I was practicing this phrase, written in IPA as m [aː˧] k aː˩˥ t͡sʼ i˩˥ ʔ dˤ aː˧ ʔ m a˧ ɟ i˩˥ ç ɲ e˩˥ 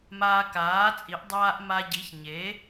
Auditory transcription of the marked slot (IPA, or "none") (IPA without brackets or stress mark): aː˧